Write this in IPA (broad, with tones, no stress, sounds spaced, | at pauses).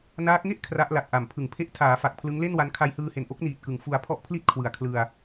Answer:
n aː˦˥ k̚ ŋ e˥˩ ʔ kʰ r a˦˥ ʔ l a˨˩ k̚ ʔ a˨˩ m pʰ ɯ˨˩ ŋ pʰ e˦˥ ʔ tʰ aː˩˦ f a˨˩ k̚ pʰ l ɯ˦˥ ŋ l e˥˩ n w a˦˥ n kʰ a˧ j h ɯː˧ h e˨˩ n ʔ o˥˩ k̚ n iː˨˩ t̚ k ɯ˩˦ ŋ f u˧ a̯ pʰ ɔ˥˩ ʔ pʰ l i˥˩ t̚ kʰ w ɯ˩˦ a̯ kʰ l ɯ˧ a̯